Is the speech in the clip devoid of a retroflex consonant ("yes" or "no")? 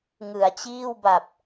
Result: yes